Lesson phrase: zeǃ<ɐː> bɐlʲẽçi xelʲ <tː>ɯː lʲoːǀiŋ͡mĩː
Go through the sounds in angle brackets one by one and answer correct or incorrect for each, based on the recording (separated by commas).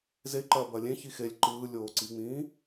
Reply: correct, incorrect